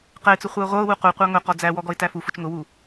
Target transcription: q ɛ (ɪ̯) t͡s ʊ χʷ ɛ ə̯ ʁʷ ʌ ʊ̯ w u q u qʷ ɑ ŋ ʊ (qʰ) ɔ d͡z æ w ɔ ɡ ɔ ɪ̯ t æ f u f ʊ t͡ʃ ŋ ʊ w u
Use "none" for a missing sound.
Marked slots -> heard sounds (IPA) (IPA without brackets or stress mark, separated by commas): ɪ̯, q